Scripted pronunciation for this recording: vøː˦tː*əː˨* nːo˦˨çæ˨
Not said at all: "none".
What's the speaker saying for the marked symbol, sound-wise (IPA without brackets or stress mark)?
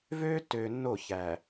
øː˨